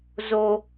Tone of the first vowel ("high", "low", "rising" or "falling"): high